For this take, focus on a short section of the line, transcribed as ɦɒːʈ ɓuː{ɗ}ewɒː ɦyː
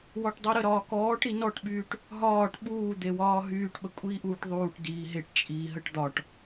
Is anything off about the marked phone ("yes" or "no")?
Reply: yes